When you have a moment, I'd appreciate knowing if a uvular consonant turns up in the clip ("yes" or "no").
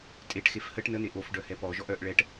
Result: no